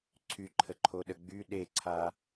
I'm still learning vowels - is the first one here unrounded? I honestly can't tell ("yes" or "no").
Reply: no